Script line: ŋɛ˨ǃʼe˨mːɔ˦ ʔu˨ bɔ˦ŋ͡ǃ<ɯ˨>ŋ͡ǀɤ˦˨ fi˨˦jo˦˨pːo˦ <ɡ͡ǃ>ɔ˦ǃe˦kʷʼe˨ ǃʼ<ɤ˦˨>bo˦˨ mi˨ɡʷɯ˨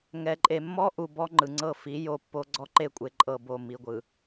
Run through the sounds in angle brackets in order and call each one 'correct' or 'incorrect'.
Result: correct, incorrect, correct

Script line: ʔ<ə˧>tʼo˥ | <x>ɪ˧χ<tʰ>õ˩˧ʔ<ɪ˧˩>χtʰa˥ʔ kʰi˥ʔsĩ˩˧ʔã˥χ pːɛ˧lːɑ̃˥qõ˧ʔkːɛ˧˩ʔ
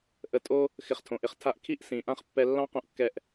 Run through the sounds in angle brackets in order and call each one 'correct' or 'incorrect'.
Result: correct, correct, correct, incorrect

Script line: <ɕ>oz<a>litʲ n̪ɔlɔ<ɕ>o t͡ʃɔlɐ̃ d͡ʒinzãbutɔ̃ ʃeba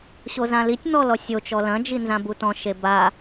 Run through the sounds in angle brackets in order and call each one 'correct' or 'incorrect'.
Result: correct, incorrect, incorrect

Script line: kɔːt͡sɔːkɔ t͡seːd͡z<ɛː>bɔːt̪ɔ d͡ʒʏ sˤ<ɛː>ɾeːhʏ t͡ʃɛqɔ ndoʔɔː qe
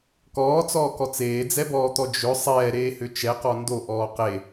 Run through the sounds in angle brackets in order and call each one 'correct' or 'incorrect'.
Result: incorrect, correct

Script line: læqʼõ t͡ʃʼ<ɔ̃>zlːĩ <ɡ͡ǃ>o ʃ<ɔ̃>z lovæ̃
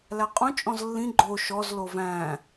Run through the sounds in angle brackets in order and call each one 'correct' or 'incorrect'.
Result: correct, correct, incorrect

